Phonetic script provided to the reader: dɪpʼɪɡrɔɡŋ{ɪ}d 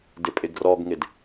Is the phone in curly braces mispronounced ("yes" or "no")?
no